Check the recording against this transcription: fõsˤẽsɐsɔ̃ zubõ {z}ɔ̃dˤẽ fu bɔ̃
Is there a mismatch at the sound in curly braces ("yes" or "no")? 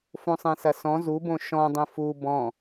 yes